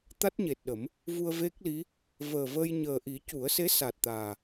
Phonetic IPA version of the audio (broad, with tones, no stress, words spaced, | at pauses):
t̪a˦˥t̚ɲe˨˩t̚ɗə˨˩˦m | vu˧ə̯ve˦˥k̚li˧˥ | vəː˨˩vəː˧jɲəː˨˩ʔi˨˩˦ cu˨˩˦ə̯se˧˥sa˨˩t̚ t̪aː˨˩